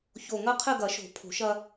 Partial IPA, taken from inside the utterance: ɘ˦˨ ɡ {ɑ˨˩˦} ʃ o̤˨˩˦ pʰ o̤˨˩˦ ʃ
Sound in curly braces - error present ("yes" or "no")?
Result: yes